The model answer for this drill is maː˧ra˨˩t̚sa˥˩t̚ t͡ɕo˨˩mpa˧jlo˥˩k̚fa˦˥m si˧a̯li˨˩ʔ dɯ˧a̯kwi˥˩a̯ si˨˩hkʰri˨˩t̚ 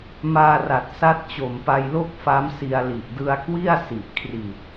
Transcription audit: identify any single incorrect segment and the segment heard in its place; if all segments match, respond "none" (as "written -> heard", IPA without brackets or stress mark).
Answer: h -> ʔ